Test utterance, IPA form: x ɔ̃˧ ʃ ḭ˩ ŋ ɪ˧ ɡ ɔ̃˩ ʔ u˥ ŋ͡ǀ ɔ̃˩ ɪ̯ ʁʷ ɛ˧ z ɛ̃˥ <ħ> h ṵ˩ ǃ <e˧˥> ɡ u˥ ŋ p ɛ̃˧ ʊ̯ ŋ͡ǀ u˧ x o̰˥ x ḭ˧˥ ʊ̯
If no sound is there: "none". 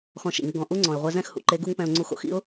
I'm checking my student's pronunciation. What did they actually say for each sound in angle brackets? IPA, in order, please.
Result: x, e˧˥

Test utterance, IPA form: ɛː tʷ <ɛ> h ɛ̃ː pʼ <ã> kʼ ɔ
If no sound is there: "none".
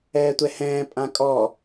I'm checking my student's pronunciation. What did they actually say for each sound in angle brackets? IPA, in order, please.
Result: ɛ, ã

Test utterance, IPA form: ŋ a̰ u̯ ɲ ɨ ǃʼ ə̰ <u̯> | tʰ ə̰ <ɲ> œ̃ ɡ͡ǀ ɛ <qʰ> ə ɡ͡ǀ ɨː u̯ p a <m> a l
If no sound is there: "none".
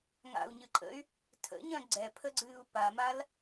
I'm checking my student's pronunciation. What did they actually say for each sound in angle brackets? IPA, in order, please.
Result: y̯, ɲ, pʰ, m

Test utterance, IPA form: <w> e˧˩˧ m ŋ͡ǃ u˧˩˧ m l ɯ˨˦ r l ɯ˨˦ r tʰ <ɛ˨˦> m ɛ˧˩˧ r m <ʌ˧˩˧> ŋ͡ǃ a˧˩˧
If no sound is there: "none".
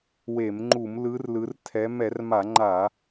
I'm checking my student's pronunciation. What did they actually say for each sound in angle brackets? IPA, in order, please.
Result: w, ɛ˨˦, a˧˩˧

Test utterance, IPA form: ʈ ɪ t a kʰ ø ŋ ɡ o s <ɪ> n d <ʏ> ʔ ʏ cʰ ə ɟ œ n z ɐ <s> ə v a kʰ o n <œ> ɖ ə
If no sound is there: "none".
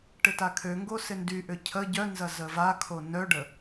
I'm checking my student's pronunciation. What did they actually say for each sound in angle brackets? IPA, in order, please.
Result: ɪ, y, z, œ

